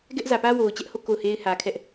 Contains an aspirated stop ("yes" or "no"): yes